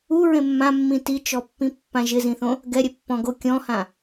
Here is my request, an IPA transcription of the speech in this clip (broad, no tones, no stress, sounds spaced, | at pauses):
u ɹ ẽ mː ã mː ĩ t i t͡ʃ ɔ pː ĩ pː ã ʒ ɪ z ĩ θ õ | ɡ ɛ ɾʲ ɛ pː ɔ̃ ɡ o kʲ ɔ̃ h ã